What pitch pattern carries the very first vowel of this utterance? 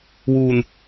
low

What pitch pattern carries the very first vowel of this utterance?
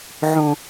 low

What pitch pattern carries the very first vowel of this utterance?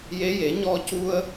rising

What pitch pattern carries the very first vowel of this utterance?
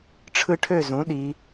high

